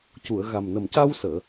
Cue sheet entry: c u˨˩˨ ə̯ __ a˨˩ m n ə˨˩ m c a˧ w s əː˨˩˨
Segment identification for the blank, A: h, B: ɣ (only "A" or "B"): B